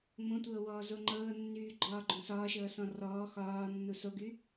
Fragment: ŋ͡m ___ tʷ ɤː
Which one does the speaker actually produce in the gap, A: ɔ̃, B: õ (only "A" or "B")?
B